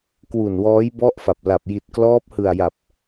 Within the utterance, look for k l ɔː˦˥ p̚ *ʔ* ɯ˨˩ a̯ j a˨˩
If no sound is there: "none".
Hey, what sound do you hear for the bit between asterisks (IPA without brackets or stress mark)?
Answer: h